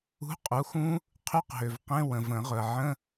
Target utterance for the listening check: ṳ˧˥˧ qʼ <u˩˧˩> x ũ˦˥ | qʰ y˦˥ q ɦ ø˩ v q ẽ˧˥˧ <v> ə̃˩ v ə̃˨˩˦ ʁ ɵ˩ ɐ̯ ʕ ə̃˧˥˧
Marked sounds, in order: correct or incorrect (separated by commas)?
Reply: correct, incorrect